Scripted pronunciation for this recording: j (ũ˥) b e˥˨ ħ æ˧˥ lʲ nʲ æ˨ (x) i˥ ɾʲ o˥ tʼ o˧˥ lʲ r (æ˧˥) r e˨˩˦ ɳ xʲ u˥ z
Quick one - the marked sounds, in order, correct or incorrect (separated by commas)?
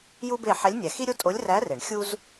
incorrect, correct, correct